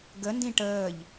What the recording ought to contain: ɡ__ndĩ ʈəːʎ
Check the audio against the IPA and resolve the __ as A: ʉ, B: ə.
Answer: B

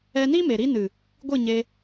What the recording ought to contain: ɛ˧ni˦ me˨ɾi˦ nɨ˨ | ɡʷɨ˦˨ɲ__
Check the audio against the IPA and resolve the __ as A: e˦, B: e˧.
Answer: B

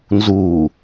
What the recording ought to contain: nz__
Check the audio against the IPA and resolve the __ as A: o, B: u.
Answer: B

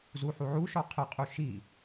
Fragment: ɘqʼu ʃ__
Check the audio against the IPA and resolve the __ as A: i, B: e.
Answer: A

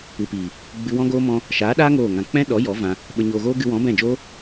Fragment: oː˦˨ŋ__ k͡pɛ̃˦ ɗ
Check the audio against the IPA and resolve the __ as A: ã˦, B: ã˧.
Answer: B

